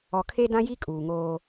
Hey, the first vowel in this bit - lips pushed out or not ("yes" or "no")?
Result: yes